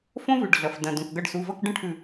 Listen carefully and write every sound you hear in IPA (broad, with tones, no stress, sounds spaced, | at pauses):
f õ˦˥ v ʉ˩˧˩ ɖ ɮ ɐ˩˧˩ f d ɐ̃˧˩ d õ˧˩ k ɡ ʌ˧˩ ɖ s u˩˧˩ v ʌ˥˨ k ɖ ə̃˥˨ ʈʰ ʉ˧˩